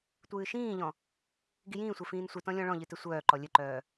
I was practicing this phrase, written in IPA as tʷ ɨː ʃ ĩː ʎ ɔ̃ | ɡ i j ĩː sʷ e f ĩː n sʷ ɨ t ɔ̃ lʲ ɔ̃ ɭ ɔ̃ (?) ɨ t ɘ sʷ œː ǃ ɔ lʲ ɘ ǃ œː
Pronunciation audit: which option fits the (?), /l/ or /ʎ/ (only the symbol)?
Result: ʎ